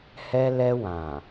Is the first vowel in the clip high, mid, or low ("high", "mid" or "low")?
mid